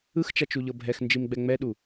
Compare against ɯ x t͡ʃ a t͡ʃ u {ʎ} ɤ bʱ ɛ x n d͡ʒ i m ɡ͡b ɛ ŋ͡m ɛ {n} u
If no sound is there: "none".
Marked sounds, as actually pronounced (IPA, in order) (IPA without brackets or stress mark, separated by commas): ʎ, ɗ